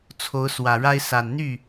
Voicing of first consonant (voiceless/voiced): voiceless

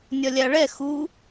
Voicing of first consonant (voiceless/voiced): voiced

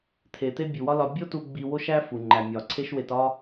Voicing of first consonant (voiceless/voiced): voiceless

